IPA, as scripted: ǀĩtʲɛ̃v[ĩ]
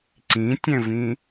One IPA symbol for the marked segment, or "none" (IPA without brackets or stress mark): ĩ